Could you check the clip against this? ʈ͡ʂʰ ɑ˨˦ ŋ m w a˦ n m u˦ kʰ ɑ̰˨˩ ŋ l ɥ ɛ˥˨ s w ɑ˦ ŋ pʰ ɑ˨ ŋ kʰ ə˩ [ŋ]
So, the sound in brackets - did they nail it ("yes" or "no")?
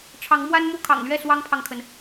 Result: no